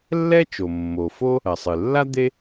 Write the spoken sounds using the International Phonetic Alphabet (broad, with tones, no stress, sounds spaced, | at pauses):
lː ɛ˥ t͡ʃ o˩ mː o˩ f o˥ | ɐ˩ sˤ ɨ˩ lː a˥ d̪ e˥